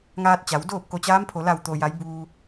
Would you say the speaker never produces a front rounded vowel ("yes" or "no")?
yes